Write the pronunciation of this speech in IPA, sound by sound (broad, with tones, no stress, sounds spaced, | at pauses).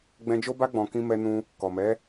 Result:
ɡ͡b ɛ̃˧ d͡ʒ o˦ b a˦ ɡ͡b ɔ̃˧ k ĩ˦ m ɛ˦ n ũ˦ | k ɔ˨ m ɛ˨˦